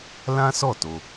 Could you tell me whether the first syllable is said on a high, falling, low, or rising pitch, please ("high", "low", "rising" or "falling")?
high